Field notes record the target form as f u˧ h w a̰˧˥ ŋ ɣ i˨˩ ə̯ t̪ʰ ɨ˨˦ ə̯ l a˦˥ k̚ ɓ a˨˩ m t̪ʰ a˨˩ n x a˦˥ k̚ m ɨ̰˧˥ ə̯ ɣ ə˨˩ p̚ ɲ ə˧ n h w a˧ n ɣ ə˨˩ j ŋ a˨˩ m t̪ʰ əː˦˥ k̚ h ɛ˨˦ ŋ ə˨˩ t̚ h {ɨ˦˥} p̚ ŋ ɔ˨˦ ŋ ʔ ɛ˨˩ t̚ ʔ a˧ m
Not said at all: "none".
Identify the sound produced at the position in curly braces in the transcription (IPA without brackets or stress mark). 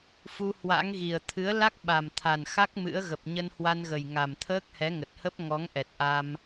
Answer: ə˦˥